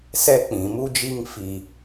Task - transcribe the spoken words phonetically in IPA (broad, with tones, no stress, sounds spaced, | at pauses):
s ɛ˦ k͡p ĩ˨˦ m u˦ d͡ʒ i˦ ŋ f i˦